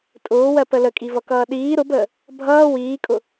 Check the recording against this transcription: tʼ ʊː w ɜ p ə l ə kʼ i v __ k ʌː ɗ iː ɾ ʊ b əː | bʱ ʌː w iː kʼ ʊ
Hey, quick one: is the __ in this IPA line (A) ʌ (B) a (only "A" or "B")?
A